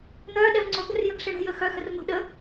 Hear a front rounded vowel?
yes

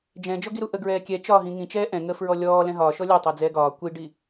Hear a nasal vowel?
yes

